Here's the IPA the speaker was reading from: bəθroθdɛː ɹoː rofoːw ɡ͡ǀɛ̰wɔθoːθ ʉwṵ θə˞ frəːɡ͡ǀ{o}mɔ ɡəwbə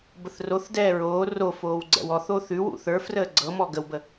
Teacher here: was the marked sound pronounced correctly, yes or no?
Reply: no